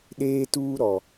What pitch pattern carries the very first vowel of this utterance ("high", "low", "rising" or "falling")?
high